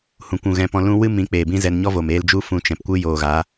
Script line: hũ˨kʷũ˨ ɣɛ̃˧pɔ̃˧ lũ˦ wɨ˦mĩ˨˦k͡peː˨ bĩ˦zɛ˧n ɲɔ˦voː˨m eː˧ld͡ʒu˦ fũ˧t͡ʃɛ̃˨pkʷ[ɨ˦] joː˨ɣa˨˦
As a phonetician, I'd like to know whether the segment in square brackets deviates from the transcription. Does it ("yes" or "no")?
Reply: no